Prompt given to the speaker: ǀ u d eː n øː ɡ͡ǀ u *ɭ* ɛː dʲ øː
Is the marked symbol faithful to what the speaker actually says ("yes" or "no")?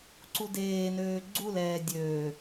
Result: no